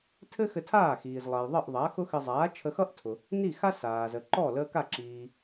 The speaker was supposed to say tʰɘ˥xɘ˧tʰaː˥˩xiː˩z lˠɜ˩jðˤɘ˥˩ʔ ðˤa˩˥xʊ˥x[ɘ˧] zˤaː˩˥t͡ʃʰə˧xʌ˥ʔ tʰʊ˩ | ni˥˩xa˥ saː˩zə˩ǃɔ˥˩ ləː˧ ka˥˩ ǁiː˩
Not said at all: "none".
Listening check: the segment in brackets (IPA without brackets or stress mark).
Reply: ɘ˧